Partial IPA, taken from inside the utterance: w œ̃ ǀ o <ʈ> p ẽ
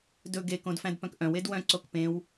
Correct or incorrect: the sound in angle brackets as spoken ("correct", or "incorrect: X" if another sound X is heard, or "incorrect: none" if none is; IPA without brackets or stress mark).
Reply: incorrect: k